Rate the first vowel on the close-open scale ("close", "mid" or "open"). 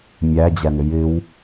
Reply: open